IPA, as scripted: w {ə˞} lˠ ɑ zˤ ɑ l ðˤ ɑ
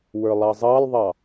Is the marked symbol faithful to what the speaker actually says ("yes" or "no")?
yes